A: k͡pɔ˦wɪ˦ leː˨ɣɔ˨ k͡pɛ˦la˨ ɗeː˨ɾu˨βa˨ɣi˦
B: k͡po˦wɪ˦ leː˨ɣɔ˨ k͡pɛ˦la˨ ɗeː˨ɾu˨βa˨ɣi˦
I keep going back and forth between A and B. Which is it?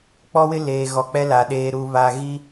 A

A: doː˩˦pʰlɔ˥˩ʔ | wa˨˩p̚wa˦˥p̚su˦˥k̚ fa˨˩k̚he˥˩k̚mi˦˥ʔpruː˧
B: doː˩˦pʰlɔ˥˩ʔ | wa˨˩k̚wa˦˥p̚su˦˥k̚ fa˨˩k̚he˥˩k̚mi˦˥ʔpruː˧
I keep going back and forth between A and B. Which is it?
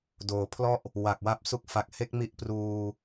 B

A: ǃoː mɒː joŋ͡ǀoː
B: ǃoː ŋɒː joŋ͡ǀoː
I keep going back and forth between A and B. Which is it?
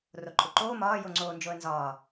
A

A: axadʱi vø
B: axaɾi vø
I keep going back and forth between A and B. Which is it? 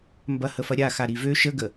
B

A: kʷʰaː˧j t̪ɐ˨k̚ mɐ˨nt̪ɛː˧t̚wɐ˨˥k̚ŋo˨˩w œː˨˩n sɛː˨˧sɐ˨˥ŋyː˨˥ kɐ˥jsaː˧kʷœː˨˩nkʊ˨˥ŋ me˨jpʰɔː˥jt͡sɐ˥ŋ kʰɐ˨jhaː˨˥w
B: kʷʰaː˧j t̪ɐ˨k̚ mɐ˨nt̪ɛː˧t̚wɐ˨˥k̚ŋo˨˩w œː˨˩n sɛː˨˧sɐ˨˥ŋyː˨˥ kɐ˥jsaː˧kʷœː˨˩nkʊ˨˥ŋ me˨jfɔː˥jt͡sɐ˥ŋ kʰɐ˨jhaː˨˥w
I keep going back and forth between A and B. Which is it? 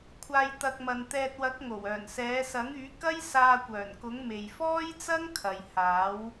B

